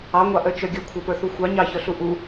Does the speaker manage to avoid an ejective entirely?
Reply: yes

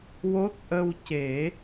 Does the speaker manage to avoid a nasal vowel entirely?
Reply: yes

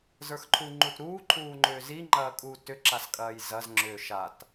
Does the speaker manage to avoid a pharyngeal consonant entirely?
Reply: yes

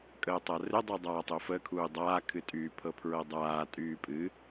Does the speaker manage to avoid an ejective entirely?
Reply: no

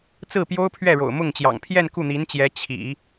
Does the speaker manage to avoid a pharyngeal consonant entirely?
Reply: yes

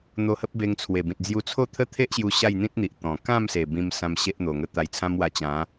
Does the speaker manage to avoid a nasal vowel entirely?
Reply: no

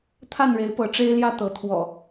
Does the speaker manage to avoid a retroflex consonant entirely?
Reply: no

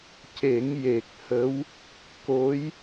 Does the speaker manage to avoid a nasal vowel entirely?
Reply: yes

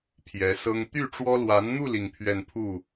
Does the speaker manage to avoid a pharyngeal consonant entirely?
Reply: yes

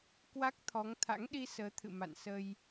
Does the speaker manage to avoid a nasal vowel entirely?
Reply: yes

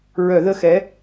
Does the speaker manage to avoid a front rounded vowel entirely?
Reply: no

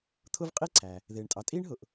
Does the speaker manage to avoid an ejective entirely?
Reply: no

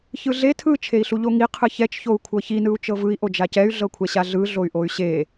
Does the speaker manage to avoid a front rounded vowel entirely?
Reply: no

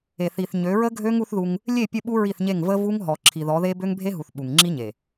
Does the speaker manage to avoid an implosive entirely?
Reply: no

